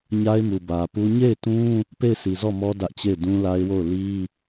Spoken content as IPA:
ɲ a˦ ɪ̯ m u˨ b ä˨ p u˦ ɲ e˦˨ ɪ̯ t ũ˦ | p e˦˨ ɪ̯ sʰ i˨ z ɔ˦˨ m ɔ˦ d ä˦ ʔ t͡ɕ e˦˨ ɪ̯ d ũ˦ l a˦ ɪ̯ w o˦˨ ʊ̯ l i˦

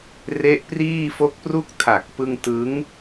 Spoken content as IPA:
r e˦˥ ʔ p r iː˥˩ f o˦˥ k̚ p r u˥˩ k̚ tʰ a˨˩ k̚ p ɯ˧ ŋ t ɯ˦˥ ŋ

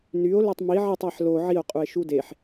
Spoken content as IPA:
n y o̯ l ø tˤ m i ʕ i tˤ æ ħ l o ʕ i o̯ qʼ u e̯ ʃ u d e ħ

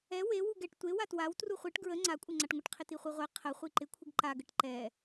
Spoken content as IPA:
ɛ w e w u ɡ ɛ ʈ tʷ e w a t w a w t r u χʷ e ʈ ɡ ɹ ə ŋ͡ǀ a kʷʼ ɪ ŋ͡ǀ a ʈ ŋʷ ə ʈ qʰ ɪ t i χʷ i ʁʷ ɛ qʰ ə χʷ i ǃ ɪ kʷʰ ɪ ɡ ǃ a ɡ ə ʈ ǃ ɛ

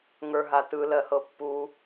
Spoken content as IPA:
ŋ ə˞ ɦ a t ɯ l ɜ h ɤ pː u

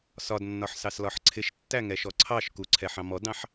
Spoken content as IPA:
s ɒ d nː ɒ ħ s ɑ s l ɒ ħ ǀʰ ɪ ʃ tː æ ŋ ɛ ʃ ɔ ǀʰ ɑ ʃ k u ǀʰ ɛ ħ ɑ̃ m ɔ d ɑ̃ ħ

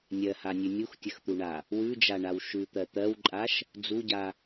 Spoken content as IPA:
nʲ ɜ h a nʲ ʉ nʲ u x tʲ ə x t̪ u ɳ a | w ʉ d͡ʒ a ɳ a w ʃ ʉ t̪ ɜ t̪ ɜ w ǃʼ a ʃ | d͡z u ɟ a

